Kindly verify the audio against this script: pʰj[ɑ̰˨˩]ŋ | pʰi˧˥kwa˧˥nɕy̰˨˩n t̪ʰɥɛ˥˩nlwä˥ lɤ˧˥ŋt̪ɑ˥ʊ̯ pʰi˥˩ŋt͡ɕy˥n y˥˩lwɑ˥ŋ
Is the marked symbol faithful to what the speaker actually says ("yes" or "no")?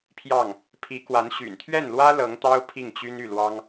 no